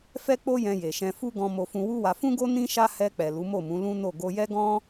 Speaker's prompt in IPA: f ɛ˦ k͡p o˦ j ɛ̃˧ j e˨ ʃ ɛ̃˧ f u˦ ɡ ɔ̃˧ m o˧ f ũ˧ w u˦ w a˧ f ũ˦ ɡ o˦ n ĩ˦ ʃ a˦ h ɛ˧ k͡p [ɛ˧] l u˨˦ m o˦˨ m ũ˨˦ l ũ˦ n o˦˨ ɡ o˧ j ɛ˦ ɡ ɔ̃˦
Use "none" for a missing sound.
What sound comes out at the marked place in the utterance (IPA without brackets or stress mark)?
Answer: ɛ˨